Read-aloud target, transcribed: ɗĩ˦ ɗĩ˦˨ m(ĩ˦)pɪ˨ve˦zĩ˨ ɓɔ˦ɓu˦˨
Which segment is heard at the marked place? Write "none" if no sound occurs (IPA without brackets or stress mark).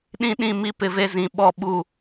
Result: i˦